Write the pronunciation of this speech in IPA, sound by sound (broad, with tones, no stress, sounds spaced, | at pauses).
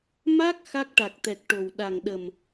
m a˦˥ k̚ x a˦˥ k̚ ʈ a˨˩ k̚ t̪ ɛ˨˩ k̚ ʈ o˨˩ w ɗ a˨˩ ŋ ɗ ə˨˩ m